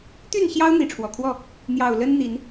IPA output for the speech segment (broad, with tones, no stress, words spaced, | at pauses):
t̪y˥˨nɕjɑ˦ʊ̯ n̪i˨˦ʈ͡ʂʰwɔ˨˩kʰwɔ˥˨ | n̪jɑ˨˩ʊ̯lə˦nn̪i˨˦n